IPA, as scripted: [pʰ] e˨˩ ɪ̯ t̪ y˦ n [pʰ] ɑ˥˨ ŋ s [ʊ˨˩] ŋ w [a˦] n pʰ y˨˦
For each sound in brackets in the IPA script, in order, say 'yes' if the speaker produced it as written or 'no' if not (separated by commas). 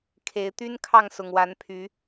no, no, yes, no